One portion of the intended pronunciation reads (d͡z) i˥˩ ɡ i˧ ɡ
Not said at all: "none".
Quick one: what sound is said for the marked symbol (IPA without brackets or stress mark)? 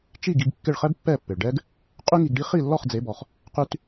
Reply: t͡ʃ